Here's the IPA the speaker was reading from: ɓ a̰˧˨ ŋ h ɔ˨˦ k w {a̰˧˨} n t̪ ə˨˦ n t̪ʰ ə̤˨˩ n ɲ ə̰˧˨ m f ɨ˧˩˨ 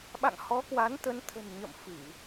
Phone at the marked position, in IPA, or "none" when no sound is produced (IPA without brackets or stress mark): a˨˦